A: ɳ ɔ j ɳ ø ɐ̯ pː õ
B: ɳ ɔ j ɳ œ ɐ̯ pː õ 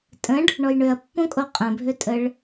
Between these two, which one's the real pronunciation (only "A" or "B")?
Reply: A